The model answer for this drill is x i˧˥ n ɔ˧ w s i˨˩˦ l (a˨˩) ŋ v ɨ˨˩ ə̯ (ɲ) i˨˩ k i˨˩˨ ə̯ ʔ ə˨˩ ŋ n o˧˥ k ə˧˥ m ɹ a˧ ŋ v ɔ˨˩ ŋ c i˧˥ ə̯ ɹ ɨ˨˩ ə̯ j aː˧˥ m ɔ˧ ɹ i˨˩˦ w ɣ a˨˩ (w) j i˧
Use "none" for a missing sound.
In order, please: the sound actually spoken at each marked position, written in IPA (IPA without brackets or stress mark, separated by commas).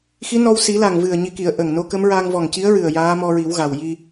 a˨˩, ɲ, w